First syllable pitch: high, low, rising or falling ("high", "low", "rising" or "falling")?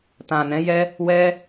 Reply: low